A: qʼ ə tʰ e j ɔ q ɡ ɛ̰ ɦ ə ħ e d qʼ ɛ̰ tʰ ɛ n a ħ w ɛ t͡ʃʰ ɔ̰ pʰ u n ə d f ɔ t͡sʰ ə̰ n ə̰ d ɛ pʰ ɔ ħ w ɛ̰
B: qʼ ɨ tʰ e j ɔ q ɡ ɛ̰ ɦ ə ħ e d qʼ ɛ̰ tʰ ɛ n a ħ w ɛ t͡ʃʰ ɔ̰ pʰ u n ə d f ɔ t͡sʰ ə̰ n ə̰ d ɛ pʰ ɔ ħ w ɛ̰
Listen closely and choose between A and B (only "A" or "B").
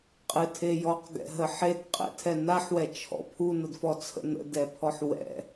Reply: B